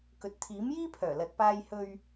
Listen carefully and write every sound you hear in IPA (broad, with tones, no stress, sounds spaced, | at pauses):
k ɵ˨˥ t̚ t̪ʰ iː˨˥ m j iː˥ pʰ œː˨˩ l ɐ˨ t̚ p aː˧ j h ɵ˧ ɥ